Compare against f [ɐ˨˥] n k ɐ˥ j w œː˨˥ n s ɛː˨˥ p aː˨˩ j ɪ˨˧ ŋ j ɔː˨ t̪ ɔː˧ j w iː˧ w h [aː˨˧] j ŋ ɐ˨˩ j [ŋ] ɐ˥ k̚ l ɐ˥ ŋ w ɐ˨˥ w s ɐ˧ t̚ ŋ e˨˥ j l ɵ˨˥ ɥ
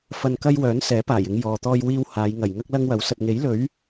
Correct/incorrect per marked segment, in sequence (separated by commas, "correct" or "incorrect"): incorrect, correct, correct